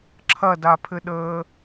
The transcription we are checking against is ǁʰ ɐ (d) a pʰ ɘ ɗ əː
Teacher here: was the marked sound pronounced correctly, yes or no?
yes